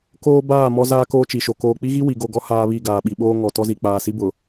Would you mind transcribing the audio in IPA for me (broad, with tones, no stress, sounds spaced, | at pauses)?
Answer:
k oː˦ b aː˦˨ m ɔ˦ z aː˦ k oː˦ t͡ʃ i˨ ʃ o˨ k oː˨ k͡p i˦ ɣ i˦ w i˨ ɡ o˦˨ ɡ ɔ˦ h aː˦ β i˦˨ ɡ aː˨ ɓ i˨ ɓ oː˦ ŋ ɔ˨ t ɔ˦ z i˨ k͡p aː˨ s i˦ b ʊ˨